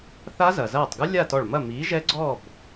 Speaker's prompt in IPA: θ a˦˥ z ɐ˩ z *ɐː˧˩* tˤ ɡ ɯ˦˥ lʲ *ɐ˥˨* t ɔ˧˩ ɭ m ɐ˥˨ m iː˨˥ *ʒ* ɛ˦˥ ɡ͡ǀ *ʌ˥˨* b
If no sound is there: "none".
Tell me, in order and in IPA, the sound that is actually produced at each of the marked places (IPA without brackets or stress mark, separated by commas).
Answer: ɐː˧˩, a˥˨, ʒ, ɔ˥˨